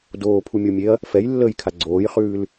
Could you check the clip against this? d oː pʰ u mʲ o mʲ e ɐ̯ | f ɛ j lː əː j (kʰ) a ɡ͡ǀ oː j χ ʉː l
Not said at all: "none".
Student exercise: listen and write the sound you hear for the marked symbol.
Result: kʰ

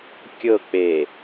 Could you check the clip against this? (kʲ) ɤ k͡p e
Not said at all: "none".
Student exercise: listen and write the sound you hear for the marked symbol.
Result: kʲ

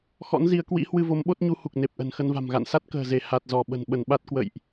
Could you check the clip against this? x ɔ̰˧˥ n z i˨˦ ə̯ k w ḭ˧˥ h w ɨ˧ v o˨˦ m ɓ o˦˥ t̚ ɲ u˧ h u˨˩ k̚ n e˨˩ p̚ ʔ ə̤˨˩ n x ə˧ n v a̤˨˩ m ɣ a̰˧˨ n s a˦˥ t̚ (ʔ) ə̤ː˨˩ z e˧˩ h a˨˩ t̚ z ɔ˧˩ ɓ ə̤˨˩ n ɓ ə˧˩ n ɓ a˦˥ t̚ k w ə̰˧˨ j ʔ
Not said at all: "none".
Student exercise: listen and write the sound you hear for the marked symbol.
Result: k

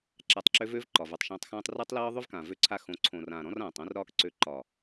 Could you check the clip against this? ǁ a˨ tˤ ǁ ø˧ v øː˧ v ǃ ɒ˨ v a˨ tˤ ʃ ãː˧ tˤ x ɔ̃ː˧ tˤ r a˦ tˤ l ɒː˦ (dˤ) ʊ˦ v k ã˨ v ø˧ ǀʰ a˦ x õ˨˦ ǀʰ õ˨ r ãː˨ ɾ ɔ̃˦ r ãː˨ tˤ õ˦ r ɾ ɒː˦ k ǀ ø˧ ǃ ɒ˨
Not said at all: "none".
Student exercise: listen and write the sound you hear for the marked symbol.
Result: ðˤ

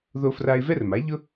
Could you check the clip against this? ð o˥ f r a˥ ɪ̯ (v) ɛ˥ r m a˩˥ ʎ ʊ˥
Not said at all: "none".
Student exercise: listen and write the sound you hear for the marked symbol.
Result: v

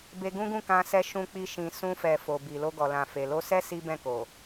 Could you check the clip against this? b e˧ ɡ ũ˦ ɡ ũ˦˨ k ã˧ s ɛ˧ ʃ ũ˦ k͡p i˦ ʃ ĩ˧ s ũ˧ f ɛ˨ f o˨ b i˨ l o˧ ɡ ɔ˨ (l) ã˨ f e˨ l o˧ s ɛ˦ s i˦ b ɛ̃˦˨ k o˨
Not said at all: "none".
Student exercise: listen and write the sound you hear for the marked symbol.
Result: l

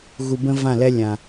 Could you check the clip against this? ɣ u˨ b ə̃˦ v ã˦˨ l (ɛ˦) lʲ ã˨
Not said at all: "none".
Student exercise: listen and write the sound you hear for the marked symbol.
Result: ɛ˦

